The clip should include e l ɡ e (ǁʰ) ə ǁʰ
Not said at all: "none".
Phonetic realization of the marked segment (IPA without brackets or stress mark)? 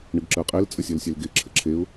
ǁʰ